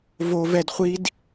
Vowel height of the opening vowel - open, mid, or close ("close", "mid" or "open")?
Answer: mid